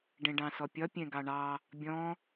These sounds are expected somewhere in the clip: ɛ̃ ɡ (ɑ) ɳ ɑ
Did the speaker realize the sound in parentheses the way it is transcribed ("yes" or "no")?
yes